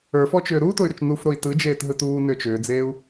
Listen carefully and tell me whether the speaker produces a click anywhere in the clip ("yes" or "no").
no